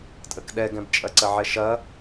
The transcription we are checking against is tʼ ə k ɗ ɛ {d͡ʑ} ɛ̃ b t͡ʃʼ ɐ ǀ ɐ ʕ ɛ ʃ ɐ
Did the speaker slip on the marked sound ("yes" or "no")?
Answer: yes